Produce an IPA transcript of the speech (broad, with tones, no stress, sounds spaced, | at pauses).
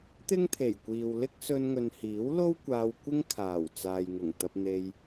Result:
t̪ ɪ˥ ŋ t̪ʰ e˨˩ j kʷ iː˨ w l ɪ˥ k̚ s ɵ˧ n ŋ ɵ˨ n h iː˨˥ w l o˥ w kʷ aː˧ w kʷ ɪ˥ ŋ kʰ aː˨˩ w t͡s aː˨ j ŋ ʊ˨˩ ŋ t̪ ɐ˧ p̚ n̪ e˧ j